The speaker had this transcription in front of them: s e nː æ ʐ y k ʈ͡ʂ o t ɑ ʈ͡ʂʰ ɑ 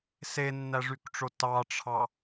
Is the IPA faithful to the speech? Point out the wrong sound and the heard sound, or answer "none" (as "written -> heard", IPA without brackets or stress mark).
none